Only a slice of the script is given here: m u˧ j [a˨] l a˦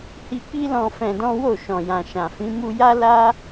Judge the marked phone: incorrect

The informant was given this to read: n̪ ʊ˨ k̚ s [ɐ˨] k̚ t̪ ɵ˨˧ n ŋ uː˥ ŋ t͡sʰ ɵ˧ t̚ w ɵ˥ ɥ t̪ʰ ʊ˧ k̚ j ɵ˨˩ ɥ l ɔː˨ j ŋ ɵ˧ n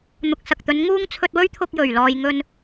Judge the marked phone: correct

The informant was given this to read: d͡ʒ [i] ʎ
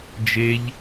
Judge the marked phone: incorrect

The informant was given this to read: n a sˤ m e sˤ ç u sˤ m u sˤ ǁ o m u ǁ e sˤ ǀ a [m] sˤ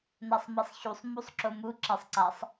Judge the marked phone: incorrect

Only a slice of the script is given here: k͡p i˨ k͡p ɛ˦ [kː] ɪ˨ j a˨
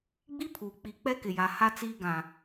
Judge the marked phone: incorrect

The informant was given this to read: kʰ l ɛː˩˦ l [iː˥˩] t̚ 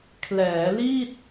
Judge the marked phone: correct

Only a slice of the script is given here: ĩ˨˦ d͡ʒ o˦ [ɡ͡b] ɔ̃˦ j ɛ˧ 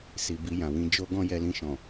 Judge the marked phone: incorrect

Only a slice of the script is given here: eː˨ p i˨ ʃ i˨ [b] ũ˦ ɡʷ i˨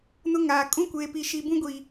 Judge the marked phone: correct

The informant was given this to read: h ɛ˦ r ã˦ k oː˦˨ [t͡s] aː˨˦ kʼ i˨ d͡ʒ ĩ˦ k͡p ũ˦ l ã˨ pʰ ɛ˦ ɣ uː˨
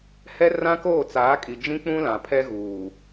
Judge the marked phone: correct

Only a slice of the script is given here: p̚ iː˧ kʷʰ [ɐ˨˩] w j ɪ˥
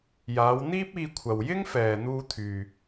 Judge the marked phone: incorrect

